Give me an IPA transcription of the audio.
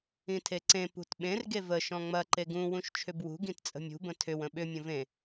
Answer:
ĩ tʰ e ǀ ẽ p ṳ t ɓ ẽ r ɡ e v ə ʃ ɔ̃ ŋ͡m ɐ ǃ e ɡ ũ w ũ ʃ t͡ʃʰ ʏ b w ṳ ɡ ĩ t t͡sʼ ə̤ mʲ ṳ b ə̃ tʰ ʏ w ə̃ ɓ ʏ mʲ ə̃ v ẽ

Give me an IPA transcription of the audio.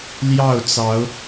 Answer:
l j ɑ˥˨ ʊ̯ t͡s ɑ˨˦ ʊ̯

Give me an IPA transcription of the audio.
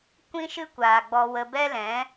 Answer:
kʷ ĩ˦ ʃ ɨ˦ kʷ aː˨ ɡ͡b ɔ˧ w ə˧ b ɛ˦ l ɛ̃˨˦

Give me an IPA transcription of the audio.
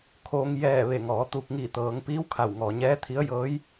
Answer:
kʰ oː˧ ŋ j ɛː˧˩ ʋ e˧˩ ŋ ɔː˩˧ t̪ u˧˩ k̚ ŋ iː˧˩ t̪ ɤː˩˧ ŋ p iː˧˥ w kʰ a˧˩ w ŋ ɔː˩ ɲ ɛː˧˥ t̪ʰ i˧˥ ə̯ j ɤː˧˥ j

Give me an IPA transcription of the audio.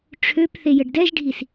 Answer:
ʈ͡ʂʰ ø p θ e j ə ɖ d ɛ ʒ ɖʱ i s

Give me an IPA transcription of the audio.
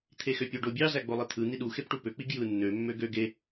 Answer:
t̪ʰ e x ø pʲ o ɖ o bʲ ɑ z æ ɡ͡b o lˠ e t̪ʰ ɯ n̪ i ɗ u x e p ʈ u p ø k͡p i ɡ j ɯ nː ø mː ø ɡ ø ɡ e

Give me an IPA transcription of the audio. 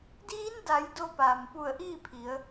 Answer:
d iː˧˥ n d a˩˧ j d o˧ p aː˩ m p u˧˩ ə̯ ʔ iː˥˨ pʰ i˩˧ ə̯

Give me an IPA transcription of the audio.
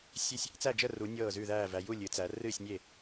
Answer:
sʲ e˥˨ sʲ | t͡s æ˥˨ d͡ʒ ə˥˨ r u˨˦ nʲ ɤː˥˨ z ʉ˥˨ ð æː˥˨ v æ˨˦ j u˥˨ lʲ ɨ˨˦ t͡s æ˨˦ r ɨː˥˨ sʲ nʲ e˥˨

